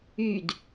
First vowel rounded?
yes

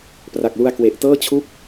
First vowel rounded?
no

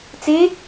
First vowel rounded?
no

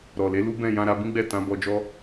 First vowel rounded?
yes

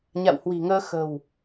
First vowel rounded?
no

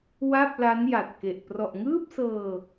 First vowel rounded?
no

